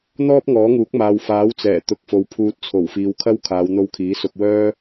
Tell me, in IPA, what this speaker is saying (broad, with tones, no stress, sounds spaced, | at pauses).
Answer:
n̪ ɔː˥ p̚ ŋ ɔː˨˥ ŋ uː˨˥ k̚ m aː˨ w f aː˨˥ w t͡s ɛː˨˩ t̪ ʊ˨˥ k̚ f o˨ w pʰ uː˨ t̚ t͡sʰ o˨˩ w f iː˨˧ w kʰ ɐ˥ w kʰ aː˨˧ w n̪ o˧ w kʰ iː˨˥ s ʊ˧ k̚ w œː˥